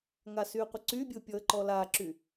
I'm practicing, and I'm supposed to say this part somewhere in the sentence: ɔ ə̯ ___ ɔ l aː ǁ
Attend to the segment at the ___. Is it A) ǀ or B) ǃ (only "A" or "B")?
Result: B